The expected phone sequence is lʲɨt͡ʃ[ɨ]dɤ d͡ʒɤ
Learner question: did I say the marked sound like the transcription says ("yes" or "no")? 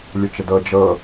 no